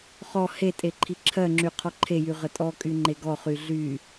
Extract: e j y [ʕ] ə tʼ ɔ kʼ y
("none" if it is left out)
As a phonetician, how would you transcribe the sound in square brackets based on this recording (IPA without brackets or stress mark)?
ʁ